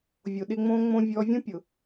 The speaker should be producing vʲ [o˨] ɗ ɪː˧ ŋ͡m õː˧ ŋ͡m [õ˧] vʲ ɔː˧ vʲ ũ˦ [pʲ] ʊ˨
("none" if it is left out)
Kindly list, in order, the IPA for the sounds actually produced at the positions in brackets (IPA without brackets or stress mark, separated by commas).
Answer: o˨, õ˧, pʲ